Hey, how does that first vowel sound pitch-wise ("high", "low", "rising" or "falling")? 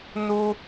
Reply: high